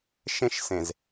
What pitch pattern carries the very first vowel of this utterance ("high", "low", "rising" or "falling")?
high